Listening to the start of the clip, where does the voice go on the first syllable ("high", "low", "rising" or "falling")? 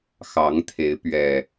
rising